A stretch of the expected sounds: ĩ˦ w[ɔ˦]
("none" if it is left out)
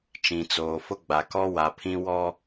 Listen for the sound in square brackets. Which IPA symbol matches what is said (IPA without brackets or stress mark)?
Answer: ɔ˦